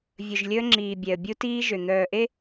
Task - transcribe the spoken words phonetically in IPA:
vʲ ɵ˨ ʒ lʲ ɵ˦ ə̯ ŋ͡ǁ iː˨ bʲ ɛ˨ ə̯ bʲ u˦ t iː˦ ʒ ø˨ n̪ œː˨ ʔ e˦

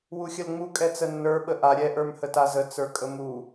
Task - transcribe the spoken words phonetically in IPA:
w u xʲ ə l ŋ͡m u kʼ ɛ t͡s ə nː ə˞ ɓ ə ʔ a ɾʲ ɛ ʔ ə˞ m h ə t a z ə t͡s ə˞ kʼ ə m u

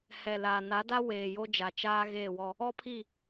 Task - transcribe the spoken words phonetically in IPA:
h ɛ˨ l aː˨ n a˨˦ d a˦ w eː˨ j o˦ d͡ʒ a˨ t͡ʃ aː˦ ɣ eː˦˨ w ɔ˦ | ɔ˦ pʰ i˦˨

